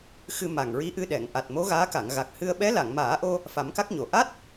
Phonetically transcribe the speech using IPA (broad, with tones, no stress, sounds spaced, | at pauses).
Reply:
x ɨ˧ m a˨˩ ŋ ɹ i˧˥ ʔ ɨ˧ ɗ ɛ˨˩˨ ŋ ʔ a˨˩ t̚ m o˧˥ ɣ aː˧˥ k a˨˩˨ ŋ ɣ a˨˩ k̚ h ɨ˧ ə̯ ɓ ɛ˧˥ l a˨˩˨ ŋ m aː˨˩˦ ʔ o˧ | f a˨˩˦ m k a˦˥ k̚ ɲ o˨˩˨ ʔ a˦˥ t̚